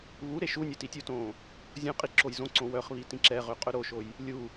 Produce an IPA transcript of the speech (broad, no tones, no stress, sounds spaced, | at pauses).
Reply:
β u ɾ e ʃ u nʲ ɵ t i tʲ u t õː | zʲ õ qʼ i ǁ o j z õ ǀ õ w œ χ β i t ĩ ǁ ɛ ʁ ø qʼ ɵ ɾ o ʃ o j | lʲ u